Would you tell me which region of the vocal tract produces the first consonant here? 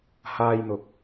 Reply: throat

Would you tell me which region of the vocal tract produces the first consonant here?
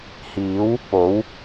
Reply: throat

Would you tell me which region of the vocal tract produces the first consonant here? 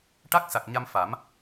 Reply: retroflex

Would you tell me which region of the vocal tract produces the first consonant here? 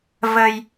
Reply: lips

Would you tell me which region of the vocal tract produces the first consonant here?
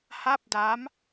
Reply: throat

